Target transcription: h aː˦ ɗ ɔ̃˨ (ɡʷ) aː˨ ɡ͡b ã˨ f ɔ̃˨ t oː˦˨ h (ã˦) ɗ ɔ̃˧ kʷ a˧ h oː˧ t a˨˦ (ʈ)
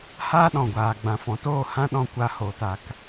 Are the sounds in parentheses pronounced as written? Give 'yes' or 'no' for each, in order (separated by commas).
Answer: yes, yes, no